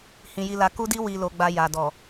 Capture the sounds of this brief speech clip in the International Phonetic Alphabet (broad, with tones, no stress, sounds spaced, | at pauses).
h ĩ˧ j i˧ l a˧ k u˦ d i˦ w i˧ l o˧ ɡ͡b a˧ j a˨ d ɔ˨